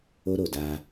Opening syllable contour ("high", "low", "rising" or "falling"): high